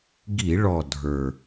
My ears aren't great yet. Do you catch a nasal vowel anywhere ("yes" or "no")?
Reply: no